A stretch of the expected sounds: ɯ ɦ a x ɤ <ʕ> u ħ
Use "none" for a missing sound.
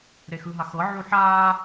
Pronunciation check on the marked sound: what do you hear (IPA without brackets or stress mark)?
ʕ